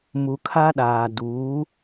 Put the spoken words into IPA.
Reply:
m u˨ kʰ a˦ ɗ aː˨ d uː˨˦

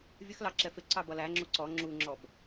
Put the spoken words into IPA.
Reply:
vʲ ə x l ɑ ǁ ɛ f ɪ ǀ ɑ b ʌ l æ ŋ͡ǁ u ǀ ɔ ŋ͡ǁ u ŋ͡ǁ ɔ b

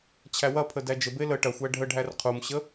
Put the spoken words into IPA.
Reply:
t͡ɕʰ æ w ɐ pʰ ə d æ d͡ʒ ə b e l ə ʈ ɐ xʷ æ ɖʱ ə ɖʱ æ r qʰ u m ɕ ə

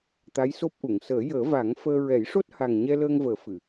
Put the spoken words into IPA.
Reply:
t̪ a˧˥ j s o˦˥ p̚ ʔ u˨˩˨ ŋ s əː˨˩˦ j əː˨˩˦ v a˨˩˦ ŋ f əː˧ ɹ ɛ˨˩˦ j ʂ o˦˥ t̚ h a˨˩ ŋ ɲ ɛ˧ l əː˧ ŋ v əː˨˩˦ f ɨ˨˩˨

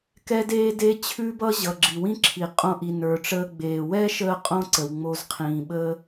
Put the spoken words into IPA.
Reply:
k ɛ˦ d eː˦ d e˦ t͡ɕʰ ʉ˦ b ʌ˦ ʑ ʌ˨ ɡ͡ǁ i˨ w ĩ˦ ǁʰ i˨ qʼ õ˧ ʔ i˨ n ə˞˨ ʈ͡ʂ əː˧ ɡ͡b eː˨ w ɛ˦ ʃ əː˧ qʼ õ˧ ǀ ə˨ w ŋ͡m o˧ z qʰ ĩː˨ ɓ əː˦

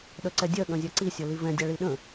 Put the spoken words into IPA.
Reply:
ɗ œ ǀ ɛ dʲ ɜ ɠ œ̃ zʲ a ǀ i sʲ ɤ l i v ɛ̃ dʲ a ɭ i ɗ ə̃

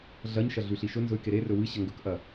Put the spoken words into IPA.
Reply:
ɮ ɐ ɲ ʃ ɐ ɮ ʉ ɬ i ʃ ɵ n z ɵ y̯ k e ɾ e r ɵ w ɨ ɕ ɐ ŋ ɡ ɵ k ʔ ɐ

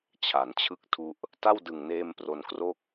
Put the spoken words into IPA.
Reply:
t͡ɕʰ a˩˦ n t͡ɕʰ ɯ˥˩ k̚ tʰ u˦˥ ʔ | t a˥˩ w d ɯ˨˩ ŋ n eː˧ m p r o˧ n k r o˥˩ k̚

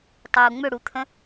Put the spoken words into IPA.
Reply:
tˤ uː ŋ͡m ʏ ɽ u t̪ʰ ə̃

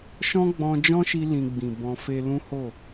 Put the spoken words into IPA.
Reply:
ʃ ɔ̃˦ ɡ͡b ɔ̃˧ d͡ʒ ɔ̃˦ ʃ i˧ l ĩ˧ ɡ͡b ĩ˨ b ɔ̃˧ f e˧ l ũ˦ h o˦˨

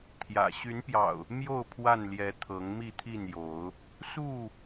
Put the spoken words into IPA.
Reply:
t̪ʰ j ä̰˨˩ ɕ y˨˦ n p j ɑ̰˨˩ ʊ̯ | m j o˥˨ ʊ̯ pʰ w a˥˨ n l j ɛ˨˦ t̪ʰ ɤ˨˦ ŋ m i˥˨ t̪ʰ i˥˨ n j o˨˦ ʊ̯ | s u˥˨

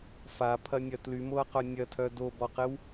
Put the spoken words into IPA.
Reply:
f a pʰ ɐ nʲ ɐ t l y m o ɐ̯ q œ nʲ ɐ tʰ œ d o b ɔ q ɪ w

